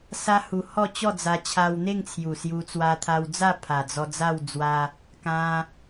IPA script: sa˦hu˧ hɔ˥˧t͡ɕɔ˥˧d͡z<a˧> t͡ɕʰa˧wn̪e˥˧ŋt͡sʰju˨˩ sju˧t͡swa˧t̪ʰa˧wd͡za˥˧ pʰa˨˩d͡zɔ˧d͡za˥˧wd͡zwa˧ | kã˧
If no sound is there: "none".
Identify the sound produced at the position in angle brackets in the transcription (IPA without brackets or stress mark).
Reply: a˧